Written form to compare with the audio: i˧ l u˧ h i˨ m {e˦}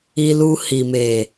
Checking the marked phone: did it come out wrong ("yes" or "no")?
yes